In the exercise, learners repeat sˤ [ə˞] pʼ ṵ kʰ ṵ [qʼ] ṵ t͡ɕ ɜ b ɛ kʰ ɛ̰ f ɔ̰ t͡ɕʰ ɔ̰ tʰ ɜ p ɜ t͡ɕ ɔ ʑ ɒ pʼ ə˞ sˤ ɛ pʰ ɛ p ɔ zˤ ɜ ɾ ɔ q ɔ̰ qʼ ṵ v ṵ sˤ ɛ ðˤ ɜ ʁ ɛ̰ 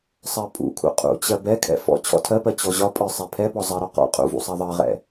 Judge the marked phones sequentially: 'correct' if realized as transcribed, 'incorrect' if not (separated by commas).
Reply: incorrect, correct